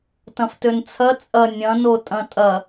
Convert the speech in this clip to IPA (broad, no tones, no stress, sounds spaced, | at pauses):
t ɐ̃ f t ø n t͡sʰ ɐ t͡sʼ ɐ nʲ ɐ̃ n o tʼ ɐ̃ tʼ ɐ